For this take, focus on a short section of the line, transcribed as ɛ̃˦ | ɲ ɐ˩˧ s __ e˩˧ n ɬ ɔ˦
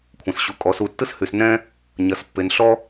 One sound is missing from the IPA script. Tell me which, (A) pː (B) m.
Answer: A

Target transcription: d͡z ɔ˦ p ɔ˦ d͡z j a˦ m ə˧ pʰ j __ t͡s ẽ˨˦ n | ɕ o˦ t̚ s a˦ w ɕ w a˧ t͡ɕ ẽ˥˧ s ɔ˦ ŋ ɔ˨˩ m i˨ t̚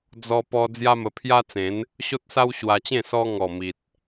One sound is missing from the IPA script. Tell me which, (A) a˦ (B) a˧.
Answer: A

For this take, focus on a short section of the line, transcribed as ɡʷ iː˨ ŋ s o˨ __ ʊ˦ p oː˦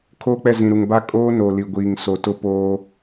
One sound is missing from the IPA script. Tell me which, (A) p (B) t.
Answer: B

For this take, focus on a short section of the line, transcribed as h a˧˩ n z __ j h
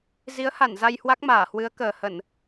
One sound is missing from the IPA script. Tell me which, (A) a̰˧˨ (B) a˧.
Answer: B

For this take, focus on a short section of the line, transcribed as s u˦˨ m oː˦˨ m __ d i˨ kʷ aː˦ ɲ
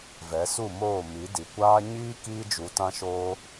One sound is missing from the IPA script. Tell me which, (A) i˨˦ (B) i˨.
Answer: A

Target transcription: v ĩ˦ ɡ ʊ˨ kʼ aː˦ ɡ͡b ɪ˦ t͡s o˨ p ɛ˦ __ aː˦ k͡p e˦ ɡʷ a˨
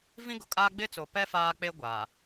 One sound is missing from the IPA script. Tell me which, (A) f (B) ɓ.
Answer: A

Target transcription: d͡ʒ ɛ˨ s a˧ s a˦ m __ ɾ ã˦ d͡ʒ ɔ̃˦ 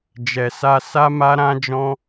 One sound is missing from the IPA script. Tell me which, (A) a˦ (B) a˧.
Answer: A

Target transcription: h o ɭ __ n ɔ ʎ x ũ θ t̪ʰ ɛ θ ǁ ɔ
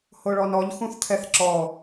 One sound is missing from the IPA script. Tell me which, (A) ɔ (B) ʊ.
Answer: A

